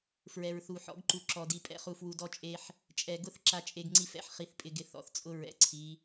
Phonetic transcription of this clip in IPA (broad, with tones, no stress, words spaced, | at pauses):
fɹɛ˨ɹθu˨ ħɔ̰˨˦ɡǃu˨ ǁɔ˨di˨ pʼɛ̰˦χu˨fwu˨ dɔ˦t͡ʃʼe˦ħ | t͡ʃʼɛ˨ɡʊ˦˨θ ǁa˨t͡ʃʼe˨ɡŋ͡ǀi˨fɛ̰˦ħ χi˨θpʼɪ˨ɡɪ˨ θɔ̰˨θt͡sʼʊ˦ɹɛ̰˨ǀʰi˨˦